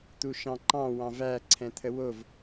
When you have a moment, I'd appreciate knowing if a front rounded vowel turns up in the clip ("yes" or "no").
no